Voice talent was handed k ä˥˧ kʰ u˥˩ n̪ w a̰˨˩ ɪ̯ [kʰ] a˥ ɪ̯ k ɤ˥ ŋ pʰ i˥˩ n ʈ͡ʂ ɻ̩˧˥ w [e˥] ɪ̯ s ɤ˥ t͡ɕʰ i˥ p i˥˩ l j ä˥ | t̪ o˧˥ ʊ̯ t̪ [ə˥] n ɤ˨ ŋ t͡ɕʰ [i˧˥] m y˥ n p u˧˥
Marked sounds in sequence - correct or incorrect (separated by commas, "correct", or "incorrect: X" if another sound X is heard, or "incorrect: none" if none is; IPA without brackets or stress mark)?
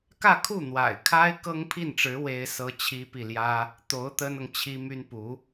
correct, correct, correct, incorrect: i˥